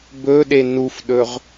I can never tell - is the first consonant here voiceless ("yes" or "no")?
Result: no